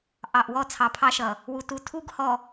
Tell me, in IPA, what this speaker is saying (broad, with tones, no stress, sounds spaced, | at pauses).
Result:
ʔ ɑ˨ ʔ w ɔ˦˨ t͡sʰ ɑ˨ pʰ ɑ˦ ʃ ʌ˨ | w u˨ t u˨ tʰ u˦ ɡ h ɔ˨